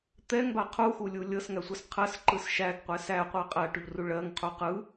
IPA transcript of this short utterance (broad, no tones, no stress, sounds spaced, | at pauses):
t̪ ɛ ŋ b a qʰ u x u lʲ u lʲ ɤ s ŋ æ sʷ ɯ s qʰ ɜ s ǃ ɯ s ʃ æ ɡ qʷ ɛ s æ qʷ ɜ qʼ æ ʈ u ʎ r u ɭ ɜ ŋ qʰ u q ɯ